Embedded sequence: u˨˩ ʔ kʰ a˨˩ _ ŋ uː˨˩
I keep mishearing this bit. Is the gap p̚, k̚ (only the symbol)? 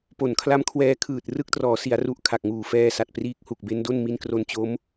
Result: k̚